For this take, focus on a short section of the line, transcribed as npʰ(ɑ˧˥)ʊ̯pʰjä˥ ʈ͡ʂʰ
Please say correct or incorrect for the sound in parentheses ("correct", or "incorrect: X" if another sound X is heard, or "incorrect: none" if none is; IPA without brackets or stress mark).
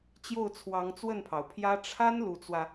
incorrect: ɑ˩